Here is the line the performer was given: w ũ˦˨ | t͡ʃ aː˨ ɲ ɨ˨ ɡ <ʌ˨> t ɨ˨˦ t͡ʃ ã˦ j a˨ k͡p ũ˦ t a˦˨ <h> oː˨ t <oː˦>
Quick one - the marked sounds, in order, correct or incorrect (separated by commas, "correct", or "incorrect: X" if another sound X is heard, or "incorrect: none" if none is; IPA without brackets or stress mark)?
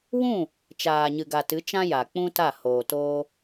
incorrect: a˨, correct, correct